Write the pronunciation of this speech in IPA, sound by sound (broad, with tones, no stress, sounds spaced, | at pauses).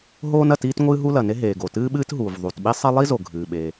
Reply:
ɦ oː˥ n ɐ˩ t iː˥ t ŋʷ ɨː˥ ɦ u˥ l ɐ˩ n e˥ ɦ eː˩ ɡ o˩ t ɨː˥ ɓ ɨː˥ t ɦ uː˩ v ðˤ u˩ t ɓ i˥ sˤ e˥ lˠ i˥ z o˩ ɡʱ ɨː˩ ɓ e˩